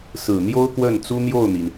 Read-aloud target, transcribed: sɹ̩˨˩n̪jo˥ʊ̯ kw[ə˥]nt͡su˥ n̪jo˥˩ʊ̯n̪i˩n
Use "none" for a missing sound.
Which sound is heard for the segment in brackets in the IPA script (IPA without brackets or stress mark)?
ə˥˩